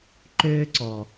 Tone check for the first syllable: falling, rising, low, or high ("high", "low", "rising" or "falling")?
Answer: high